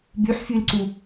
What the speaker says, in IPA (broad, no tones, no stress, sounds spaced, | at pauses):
b y ħ f y l ǀ u